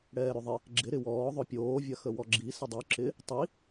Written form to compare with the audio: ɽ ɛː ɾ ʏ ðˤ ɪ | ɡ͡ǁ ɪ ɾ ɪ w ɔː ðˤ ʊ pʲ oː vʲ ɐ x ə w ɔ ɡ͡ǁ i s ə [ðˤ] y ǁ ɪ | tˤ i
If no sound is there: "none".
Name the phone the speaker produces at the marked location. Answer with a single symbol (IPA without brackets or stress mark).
dˤ